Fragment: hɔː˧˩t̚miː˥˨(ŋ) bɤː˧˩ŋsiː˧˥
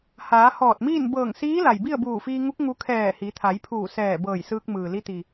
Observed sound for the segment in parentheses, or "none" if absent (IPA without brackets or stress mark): n